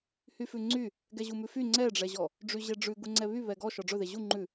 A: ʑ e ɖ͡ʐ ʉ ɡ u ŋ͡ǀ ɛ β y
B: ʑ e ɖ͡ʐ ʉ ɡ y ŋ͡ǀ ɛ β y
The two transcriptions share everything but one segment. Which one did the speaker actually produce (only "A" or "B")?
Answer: A